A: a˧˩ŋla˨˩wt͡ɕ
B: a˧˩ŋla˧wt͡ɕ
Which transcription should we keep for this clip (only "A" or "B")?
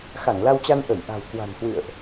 B